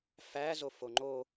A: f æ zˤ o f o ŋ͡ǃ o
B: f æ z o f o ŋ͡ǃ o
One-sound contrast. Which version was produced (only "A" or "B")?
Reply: B